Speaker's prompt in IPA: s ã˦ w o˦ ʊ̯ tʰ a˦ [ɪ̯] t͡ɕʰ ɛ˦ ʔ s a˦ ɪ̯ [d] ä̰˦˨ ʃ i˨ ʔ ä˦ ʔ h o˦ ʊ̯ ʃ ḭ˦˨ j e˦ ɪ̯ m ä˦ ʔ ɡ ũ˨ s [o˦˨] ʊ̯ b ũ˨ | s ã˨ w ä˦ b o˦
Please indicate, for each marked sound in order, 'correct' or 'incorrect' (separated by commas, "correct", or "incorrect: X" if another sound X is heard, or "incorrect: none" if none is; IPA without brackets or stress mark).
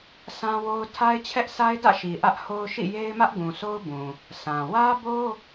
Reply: correct, correct, incorrect: o˦